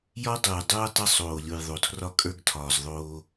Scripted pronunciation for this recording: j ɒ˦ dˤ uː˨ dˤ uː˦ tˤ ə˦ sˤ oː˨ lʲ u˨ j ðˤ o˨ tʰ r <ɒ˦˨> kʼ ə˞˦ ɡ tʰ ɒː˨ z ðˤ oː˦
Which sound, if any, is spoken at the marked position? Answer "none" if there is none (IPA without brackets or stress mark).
ɒ˦